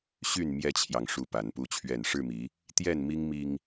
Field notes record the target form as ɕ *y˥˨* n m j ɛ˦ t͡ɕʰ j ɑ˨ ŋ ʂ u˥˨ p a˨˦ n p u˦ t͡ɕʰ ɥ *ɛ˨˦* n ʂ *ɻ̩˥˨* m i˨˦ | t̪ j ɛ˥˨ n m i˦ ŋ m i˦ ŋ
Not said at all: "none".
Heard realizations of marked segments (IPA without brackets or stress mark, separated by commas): y˥˨, ɛ˥˨, ɻ̩˥˨